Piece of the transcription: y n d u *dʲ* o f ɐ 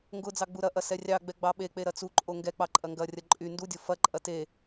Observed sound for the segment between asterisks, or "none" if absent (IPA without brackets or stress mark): dʲ